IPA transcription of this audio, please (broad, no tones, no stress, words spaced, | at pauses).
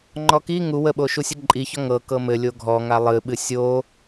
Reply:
ŋ͡ǃɔki ŋu wəɓo ʃusʲəǃʼiçɔ ŋɤ kɤmɘlʲo ɡʱɔŋa lˠɨɓɨ sʲo